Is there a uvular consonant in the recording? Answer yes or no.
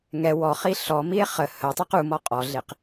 yes